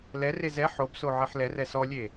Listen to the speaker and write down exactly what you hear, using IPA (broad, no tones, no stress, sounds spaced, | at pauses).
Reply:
l ɛ r e z ɛ ħ o b s o ʕ ɛ ħ l ɛ r ɛ s ɔ lʲ e